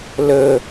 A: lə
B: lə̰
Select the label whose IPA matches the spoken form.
A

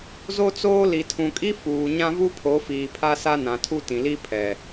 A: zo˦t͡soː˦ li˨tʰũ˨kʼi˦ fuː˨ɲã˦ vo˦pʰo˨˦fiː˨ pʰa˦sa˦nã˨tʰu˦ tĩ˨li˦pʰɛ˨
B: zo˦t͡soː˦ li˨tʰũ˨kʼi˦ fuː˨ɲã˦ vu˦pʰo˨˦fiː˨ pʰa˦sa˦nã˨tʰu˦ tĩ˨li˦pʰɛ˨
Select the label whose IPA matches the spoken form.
B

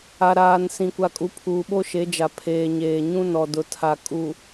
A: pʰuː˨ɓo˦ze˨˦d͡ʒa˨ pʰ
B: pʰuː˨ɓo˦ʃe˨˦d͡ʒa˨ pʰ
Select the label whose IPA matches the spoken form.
B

